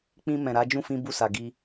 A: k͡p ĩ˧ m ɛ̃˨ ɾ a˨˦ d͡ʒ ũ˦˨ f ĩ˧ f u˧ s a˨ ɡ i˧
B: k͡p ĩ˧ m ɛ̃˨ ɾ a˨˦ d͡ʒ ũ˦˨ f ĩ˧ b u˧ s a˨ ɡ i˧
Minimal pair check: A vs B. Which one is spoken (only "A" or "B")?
B